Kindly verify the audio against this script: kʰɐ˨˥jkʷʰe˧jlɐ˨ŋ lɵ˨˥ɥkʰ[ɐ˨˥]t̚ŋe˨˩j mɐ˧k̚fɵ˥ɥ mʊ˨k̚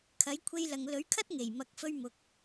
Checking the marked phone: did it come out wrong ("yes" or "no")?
yes